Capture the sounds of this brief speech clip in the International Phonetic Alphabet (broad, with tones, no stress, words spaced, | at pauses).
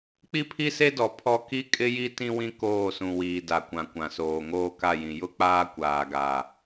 k͡pi˦pʰi˦se˦dɔ˨ pʰɔ˦ ki˦kʼɪ˦ji˦ tĩ˦wĩ˦ koː˦˨sũ˨wiː˨ da˨kʷã˨kʷã˨soː˨ ŋoː˦ka˦˨jĩ˨ jʊ˦k͡paː˦ kʷaː˨ɡa˨